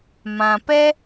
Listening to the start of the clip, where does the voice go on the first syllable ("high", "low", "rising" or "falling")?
low